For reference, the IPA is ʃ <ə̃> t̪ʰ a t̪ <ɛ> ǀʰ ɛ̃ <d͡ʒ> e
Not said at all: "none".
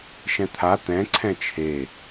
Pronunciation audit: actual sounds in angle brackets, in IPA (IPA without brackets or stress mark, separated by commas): ɛ̃, ɛ̃, t͡ʃʰ